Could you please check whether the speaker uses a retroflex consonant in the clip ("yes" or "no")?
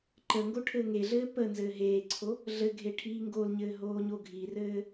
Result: yes